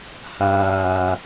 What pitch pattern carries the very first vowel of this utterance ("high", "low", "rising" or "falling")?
low